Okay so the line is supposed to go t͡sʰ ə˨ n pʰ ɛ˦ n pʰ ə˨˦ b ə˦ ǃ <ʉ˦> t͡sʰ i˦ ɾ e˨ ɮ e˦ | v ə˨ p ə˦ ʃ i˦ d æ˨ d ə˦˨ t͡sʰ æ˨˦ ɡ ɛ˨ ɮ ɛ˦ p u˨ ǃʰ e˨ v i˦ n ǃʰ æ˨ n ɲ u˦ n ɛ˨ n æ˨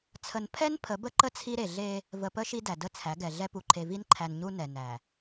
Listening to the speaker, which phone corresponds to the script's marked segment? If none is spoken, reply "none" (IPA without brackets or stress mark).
ə˦